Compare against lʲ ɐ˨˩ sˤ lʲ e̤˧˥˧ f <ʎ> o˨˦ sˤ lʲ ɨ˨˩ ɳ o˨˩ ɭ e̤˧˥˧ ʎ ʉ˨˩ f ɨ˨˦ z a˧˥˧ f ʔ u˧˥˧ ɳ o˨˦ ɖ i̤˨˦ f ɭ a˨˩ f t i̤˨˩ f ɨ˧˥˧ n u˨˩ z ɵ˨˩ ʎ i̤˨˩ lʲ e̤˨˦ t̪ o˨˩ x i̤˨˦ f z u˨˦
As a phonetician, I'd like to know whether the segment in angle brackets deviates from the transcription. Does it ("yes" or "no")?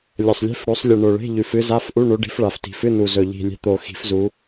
yes